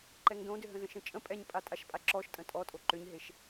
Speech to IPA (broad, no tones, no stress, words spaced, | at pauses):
ǃɛŋdõdʏɦə̃ zə̃ʃə̃t͡ʃʼə̃ pʼɛɲpʼa tʼaʃpʼaǁɔʃtʼə̃ tʼɔtʼo ǃʏɲɦeʃ